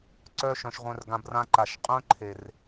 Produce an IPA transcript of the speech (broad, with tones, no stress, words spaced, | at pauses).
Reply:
ǀœ˦ʃœ̃˧ʃ ʁʷœ̃˦rɡã˦b rã˧ǃa˨ʃ qʼœ̃˦ǃʰe˨r